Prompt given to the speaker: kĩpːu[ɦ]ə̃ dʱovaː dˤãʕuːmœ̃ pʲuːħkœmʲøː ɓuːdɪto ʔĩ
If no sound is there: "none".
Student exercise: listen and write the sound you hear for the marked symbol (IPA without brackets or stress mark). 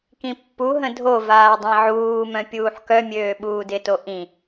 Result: ɦ